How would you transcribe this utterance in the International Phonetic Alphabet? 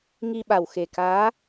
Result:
ŋ i˧ ɓ a˨˩ w x e˨˩ k aː˧˥

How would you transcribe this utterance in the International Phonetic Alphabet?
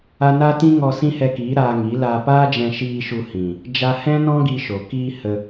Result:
a˦ n a˦ t ĩ˦ ŋ ɔ˧ s ĩ˦ h ɛ˧ k iː˨˦ ɾ aː˧ ŋ i˨˦ l a˧ p aː˦ d͡ʒ ɛ̃˧ ʃ iː˧ ʃ u˧ h ĩ˨ | d͡ʒ a˧ h ɛ̃˦ n ɔ̃˦ ɡ i˧ ʃ o˨ k iː˧ h ə˧

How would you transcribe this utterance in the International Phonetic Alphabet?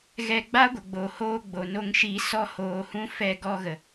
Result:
ɣ ɛ˧ ɡ͡b a˦ ɡʷ ə˨ ɡ͡b o˨ h oː˧ ɡ͡b o˨ n o˧ ŋ ʃ i˧ s ɔ˦ h oː˧ h ũ˦ f ɛ˧ ɡ ɔ˧ ɣ ə˨

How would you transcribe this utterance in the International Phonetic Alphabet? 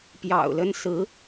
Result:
p j ɑ̰˨˩ ʊ̯ l ə˥ n s ɹ̩˧˥

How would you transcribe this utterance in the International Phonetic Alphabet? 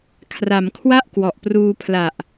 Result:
kʰ r a˩˦ m kʰ w a˥˩ ʔ k w ɔ˨˩ ʔ p r uː˧ pʰ l a˨˩ ʔ

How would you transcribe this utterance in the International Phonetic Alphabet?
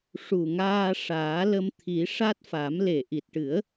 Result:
ʂ u˨˩ ŋ aː˧ ʂ aː˨˩˦ l ə˧ m t̪ʰ i˨˩˦ ʂ a˦˥ t̚ f a˨˩˦ m l e˨˩ ʔ i˨˩ t̚ ʈ ɨ˨˩˦ ə̯

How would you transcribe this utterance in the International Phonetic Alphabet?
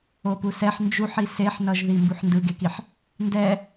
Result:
o p u s ɛ ħ n d͡ʒ u ħ i s e ħ n ʌ ʒ ð i m b u ħ n d ɯ ɡ e k i ħ | n d ɛ

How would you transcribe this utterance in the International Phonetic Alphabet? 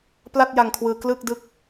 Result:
p l a˥˩ t̚ j a˧ ŋ kʰ w ɯː˧ k l ɯ˥˩ k̚ d ɯ˦˥ k̚

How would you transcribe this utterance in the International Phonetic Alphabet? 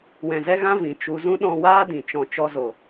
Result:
w ɛ̃˨ z ɛ˦ ɣ ã˦ v ĩ˨ t͡ʃ u˧ z ũ˦ ɗ ɔ̃˧ w aː˦ d ĩ˨ t͡ʃ ɔ̃˧ t͡ʃ ɔ˦ z o˨

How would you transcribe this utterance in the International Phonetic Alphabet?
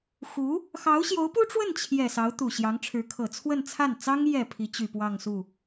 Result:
x u˧˥ | x ɑ˧˥ ʊ̯ ɕ j o˧˥ ʊ̯ p u˥ ʈ͡ʂ w ə˥˩ n t͡ɕʰ j ɛ˨˩ s ɑ˧˥ ʊ̯ t̪ u˨˩ ɕ j ɑ˧˥ ŋ ʈ͡ʂʰ ɻ̩˧˥ kʰ ɤ˨˩ t͡sʰ w ə˥˧ n t͡sʰ a˥˩ n t͡s ɑ˥ ŋ j ɛ˨˩ pʰ i˧˥ t͡ɕ y˨˩ p w ɑ˥˧ ŋ s u˥˩

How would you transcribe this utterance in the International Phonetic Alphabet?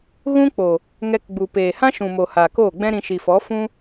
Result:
ɣ ũ˦ k͡p o˨ | ŋ ɛ˧ k ɡ͡b u˨ p eː˨ h ã˦ ʃ ũ˨ m o˨ h aː˨ k oː˦˨ ɡ͡b ɛ̃˦ ɾ ĩ˧ ʃ i˨ f ɔ˨˦ f ũ˦

